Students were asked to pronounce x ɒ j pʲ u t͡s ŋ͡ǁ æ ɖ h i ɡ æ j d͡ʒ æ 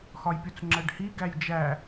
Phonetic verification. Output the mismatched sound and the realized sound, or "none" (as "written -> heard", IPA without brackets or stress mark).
none